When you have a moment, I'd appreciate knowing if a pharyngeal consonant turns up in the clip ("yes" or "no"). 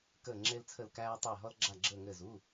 no